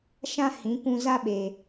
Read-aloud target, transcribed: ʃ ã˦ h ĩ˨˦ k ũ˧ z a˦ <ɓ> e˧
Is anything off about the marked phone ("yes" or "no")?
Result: no